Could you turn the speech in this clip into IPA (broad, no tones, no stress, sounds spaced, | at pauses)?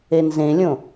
e n z ẽ lʲ õ